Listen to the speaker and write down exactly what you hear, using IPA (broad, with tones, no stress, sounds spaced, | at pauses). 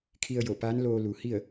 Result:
kʰ i˧ ə̯ j o˧˩ p aː˧˥ n l oː˧ l u˩ h i˥˨ ə̯